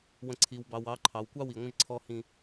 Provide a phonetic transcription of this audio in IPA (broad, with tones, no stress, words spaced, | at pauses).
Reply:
wə̃˨ǀʰi˨w bɑ˨w ɑ˨˦ǃʰɑ˨w kʷɑ˦wi˨ŋʷə̃˦ʒ ǀʰɔ˦hĩ˦